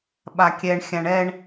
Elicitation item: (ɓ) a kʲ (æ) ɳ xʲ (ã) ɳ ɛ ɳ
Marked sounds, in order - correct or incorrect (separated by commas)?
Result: correct, incorrect, correct